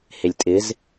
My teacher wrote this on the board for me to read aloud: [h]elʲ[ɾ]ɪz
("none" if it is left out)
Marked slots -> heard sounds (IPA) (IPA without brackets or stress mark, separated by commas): h, tʼ